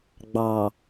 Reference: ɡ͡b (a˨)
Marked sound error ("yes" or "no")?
yes